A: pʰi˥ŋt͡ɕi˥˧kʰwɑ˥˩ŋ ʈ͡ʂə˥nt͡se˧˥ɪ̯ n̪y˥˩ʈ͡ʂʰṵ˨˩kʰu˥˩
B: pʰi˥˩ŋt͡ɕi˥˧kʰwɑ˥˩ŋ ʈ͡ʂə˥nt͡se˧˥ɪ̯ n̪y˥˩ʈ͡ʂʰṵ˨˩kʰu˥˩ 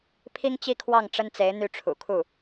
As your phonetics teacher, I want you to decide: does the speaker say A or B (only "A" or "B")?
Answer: A